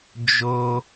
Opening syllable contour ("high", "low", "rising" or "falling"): high